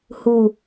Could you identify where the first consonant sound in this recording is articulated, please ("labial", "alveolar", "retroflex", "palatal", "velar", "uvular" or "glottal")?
glottal